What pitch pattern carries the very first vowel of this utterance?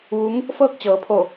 rising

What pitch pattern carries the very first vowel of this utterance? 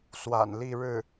low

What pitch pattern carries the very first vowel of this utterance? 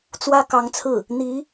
high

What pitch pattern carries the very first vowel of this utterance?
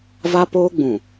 high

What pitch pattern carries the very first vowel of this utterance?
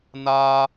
high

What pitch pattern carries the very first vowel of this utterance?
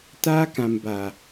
high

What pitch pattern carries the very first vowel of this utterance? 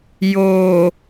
low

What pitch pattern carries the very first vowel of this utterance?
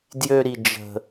high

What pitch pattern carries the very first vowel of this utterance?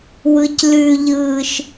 low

